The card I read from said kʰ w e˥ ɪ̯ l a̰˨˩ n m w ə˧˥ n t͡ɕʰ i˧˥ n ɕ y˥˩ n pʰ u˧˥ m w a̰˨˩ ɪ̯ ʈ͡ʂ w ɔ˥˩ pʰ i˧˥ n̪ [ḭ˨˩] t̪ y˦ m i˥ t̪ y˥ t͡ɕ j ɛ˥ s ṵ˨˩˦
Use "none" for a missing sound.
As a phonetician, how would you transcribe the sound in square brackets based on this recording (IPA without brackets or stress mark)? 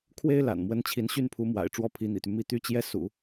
ḭ˨˩